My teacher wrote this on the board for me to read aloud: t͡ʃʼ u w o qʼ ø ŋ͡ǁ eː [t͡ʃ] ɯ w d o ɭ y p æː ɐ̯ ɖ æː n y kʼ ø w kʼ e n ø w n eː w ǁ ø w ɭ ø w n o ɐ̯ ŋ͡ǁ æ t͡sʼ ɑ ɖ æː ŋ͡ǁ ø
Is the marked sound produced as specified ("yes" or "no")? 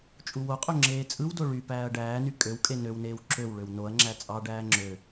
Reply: no